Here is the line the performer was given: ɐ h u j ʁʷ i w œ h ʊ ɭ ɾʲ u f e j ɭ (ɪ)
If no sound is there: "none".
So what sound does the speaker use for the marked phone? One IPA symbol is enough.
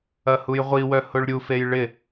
ɪ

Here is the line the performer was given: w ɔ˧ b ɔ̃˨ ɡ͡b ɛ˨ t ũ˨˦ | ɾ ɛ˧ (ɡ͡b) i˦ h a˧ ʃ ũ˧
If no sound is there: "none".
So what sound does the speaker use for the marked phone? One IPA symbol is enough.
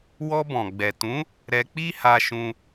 k͡p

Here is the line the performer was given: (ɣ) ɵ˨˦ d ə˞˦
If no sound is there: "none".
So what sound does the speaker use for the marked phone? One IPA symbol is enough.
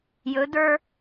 j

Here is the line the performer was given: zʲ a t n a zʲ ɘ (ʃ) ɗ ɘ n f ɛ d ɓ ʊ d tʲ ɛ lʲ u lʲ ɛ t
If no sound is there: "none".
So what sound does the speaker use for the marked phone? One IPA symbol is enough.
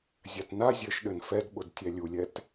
ʃ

